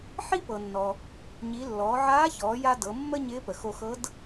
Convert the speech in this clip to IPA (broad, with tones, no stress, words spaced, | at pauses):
ħi˥pɤ˩nːɔ˩ | ɲi˩˧ lːɔː˩˧ʕaː˧˥çɔː˩˧ja˧ dɤ˩˧mːə˥ ɲɪː˧˥pə˩xo˧xɤ˧˥d